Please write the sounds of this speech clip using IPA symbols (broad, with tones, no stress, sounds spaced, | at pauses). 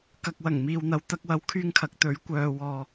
k ɐ˨ k̚ w ɐ˨˩ ŋ m iː˨ w n̪ ɐ˨ w t̪ ɐ˧ k̚ w ɐ˨˧ w kʰ yː˧ ŋ kʰ ɐ˨ k̚ t̪ ɵ˨˥ ɥ kʷ œː˨ w ɔː˨